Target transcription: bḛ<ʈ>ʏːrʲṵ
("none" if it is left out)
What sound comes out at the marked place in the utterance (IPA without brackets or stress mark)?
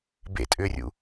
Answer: tʼ